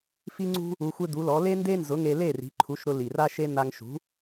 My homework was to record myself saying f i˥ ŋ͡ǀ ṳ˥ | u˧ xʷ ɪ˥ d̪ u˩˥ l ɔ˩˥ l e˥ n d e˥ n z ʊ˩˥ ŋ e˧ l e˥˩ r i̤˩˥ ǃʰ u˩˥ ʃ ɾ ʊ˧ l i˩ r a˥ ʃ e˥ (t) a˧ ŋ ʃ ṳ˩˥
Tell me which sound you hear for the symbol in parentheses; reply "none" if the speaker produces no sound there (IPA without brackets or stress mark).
n̪